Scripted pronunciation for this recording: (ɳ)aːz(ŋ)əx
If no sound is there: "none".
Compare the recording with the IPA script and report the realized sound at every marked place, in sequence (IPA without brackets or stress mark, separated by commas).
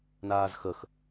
n, x